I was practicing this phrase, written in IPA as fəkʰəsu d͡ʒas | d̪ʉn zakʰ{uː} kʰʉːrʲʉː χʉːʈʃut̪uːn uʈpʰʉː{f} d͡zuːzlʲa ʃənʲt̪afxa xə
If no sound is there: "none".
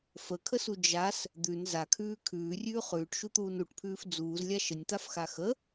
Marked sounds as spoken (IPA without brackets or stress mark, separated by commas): ʉː, f